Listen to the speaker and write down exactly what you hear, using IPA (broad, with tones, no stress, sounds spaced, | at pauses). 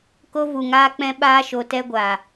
k o˧ v u˨ ŋ aː˧ k͡p ɛ̃˧ ɓ aː˧ ʃ o˨ t ɛ˧ ɡʷ a˨